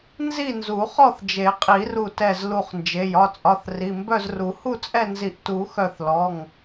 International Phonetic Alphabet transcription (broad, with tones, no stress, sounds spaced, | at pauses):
n z i˥˨ n z u˨˩˦ χ ɔ˥˨ θ d͡ʒ e˨˩˦ qʼ i˨˩˦ r u˧˩ t ɛ˧˩ z l u˧˩ χ n d͡ʒ e˩˧˩ j ɒ˩˧˩ t͡sʼ ɒ˩˧˩ θ r i˩˧˩ m b œ˥˨ z r u˨˩˦ h u˥˨ t͡sʼ ɛ˥˨ n z i˧˩ ʔ t u˨˩˦ x œ˧˩ θ l ɔ˩˧˩ ŋ